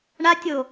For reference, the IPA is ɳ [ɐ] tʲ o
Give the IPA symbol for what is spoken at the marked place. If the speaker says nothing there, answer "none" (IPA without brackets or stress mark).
a